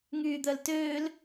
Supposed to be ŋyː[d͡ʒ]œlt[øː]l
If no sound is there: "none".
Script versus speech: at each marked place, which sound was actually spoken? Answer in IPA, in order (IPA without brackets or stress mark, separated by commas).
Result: d̪, øː